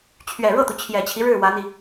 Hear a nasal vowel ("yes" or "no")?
no